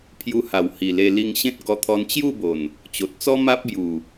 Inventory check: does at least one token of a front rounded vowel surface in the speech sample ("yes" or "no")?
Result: no